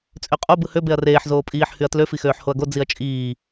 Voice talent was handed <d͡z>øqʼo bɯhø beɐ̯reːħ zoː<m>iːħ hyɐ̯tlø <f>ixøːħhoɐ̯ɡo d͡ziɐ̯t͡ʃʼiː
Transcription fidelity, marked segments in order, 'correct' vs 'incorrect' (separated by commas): incorrect, incorrect, correct